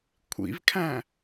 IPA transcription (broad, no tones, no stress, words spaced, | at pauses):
kʷʰḭvkʰæ̃